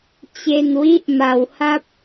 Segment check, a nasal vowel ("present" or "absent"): absent